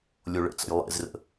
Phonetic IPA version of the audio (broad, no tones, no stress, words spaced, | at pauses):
lʲoɭə̰t͡sə̰j lˠḛzrə̰